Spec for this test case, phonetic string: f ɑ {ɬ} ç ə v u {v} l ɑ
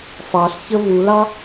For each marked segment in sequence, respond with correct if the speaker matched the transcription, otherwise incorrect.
correct, incorrect: none

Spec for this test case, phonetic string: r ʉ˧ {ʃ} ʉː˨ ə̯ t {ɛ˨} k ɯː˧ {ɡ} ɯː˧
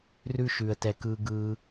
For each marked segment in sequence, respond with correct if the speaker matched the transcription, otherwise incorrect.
correct, correct, correct

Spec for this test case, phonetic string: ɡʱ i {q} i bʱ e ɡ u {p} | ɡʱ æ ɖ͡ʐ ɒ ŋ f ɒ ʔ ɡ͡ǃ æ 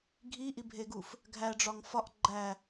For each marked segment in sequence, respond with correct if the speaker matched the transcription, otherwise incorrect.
incorrect: ʔ, incorrect: f

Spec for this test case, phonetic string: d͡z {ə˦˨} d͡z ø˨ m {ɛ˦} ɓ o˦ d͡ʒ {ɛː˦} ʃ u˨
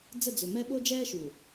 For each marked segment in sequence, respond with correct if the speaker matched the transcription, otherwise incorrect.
correct, correct, correct

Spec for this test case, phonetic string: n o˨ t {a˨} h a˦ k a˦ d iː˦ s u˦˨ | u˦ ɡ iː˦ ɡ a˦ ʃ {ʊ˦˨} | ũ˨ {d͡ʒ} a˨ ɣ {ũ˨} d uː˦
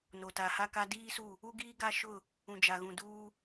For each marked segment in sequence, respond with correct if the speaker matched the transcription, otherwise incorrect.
correct, correct, correct, correct

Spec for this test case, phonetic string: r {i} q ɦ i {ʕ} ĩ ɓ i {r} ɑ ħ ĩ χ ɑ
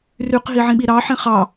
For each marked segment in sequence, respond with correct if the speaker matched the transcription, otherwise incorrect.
incorrect: y, correct, incorrect: ɾ

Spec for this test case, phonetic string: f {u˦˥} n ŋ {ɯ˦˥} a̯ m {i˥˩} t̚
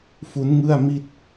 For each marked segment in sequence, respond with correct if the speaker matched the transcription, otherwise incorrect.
correct, incorrect: ɯ˥˩, correct

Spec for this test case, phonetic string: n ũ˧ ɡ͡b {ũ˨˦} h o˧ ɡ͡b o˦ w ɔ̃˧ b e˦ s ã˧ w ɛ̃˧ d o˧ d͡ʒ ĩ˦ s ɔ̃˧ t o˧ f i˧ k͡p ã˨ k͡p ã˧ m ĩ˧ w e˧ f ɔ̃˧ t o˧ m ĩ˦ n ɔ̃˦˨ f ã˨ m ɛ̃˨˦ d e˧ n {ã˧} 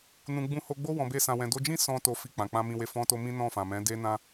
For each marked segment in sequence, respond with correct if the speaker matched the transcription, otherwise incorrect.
incorrect: ũ˧, correct

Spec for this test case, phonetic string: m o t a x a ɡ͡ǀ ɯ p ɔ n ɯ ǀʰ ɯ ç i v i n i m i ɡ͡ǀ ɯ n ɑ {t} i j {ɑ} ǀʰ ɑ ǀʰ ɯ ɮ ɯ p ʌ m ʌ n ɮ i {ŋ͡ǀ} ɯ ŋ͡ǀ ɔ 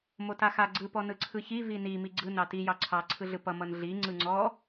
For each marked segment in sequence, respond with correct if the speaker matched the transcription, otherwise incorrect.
correct, correct, correct

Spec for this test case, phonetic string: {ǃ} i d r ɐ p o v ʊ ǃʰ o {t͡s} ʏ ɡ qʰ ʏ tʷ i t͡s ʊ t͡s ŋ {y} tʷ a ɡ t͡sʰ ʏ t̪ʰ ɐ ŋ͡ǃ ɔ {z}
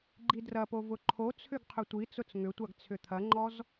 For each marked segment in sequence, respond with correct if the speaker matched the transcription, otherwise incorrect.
incorrect: ɡ͡ǃ, incorrect: t͡sʰ, incorrect: ʏ, correct

